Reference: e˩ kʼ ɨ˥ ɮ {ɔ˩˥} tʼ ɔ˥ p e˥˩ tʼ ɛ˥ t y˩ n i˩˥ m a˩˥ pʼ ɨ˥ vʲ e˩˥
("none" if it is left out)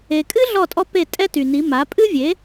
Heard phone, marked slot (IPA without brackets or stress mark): ɔ˥˩